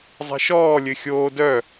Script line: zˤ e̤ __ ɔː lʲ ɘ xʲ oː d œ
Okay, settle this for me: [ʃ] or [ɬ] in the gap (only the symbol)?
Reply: ʃ